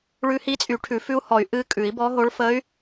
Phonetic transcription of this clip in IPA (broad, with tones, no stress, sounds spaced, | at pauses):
ɭ ʉ˧˥ h i˧˥ t͡sʼ y˨˩˦ ʈʰ ʉ˨˩˦ f ʉ˧˥ u̯ h ɔ˨˩˦ y̯ ʔ ɨ˧˥ kʼ ʉ˨˩˦ i̯ b ɔ˧˥ ɦ o˧˥ ɭ f ə˧˥ y̯